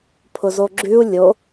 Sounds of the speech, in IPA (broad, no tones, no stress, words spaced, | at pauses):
pʰʊzoɡ͡ǁʉu̯ lʲo